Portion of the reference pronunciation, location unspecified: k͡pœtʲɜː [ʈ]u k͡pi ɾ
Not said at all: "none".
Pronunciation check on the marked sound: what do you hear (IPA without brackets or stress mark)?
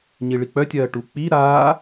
ʈ